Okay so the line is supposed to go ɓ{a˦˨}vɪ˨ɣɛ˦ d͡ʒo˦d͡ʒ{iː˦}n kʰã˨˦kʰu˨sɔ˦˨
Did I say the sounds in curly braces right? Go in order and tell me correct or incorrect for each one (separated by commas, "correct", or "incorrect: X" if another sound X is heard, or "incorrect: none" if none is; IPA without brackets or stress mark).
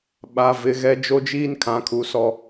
incorrect: a˨, correct